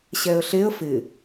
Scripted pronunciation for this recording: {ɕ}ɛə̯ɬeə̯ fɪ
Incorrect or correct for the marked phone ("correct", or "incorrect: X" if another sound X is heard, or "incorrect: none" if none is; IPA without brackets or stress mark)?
correct